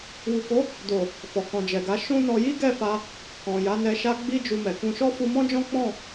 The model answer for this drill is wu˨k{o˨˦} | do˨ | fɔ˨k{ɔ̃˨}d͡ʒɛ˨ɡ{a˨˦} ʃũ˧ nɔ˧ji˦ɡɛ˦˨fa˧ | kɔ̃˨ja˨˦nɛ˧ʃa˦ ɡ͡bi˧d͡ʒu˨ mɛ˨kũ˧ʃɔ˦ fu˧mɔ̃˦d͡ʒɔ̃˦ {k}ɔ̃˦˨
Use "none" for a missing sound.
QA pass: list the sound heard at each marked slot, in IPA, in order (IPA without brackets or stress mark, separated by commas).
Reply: o˨˦, ɔ̃˨, a˨˦, k͡p